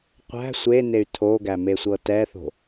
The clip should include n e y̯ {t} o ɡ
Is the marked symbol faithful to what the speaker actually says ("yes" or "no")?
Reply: no